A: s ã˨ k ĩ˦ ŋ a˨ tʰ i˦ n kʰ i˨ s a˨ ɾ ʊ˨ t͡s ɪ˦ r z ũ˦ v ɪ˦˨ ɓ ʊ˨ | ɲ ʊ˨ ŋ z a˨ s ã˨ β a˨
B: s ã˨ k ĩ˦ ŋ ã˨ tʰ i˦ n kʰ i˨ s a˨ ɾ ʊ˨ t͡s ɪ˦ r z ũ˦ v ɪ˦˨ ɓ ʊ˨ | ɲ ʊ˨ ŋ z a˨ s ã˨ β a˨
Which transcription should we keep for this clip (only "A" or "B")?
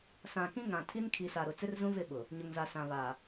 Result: B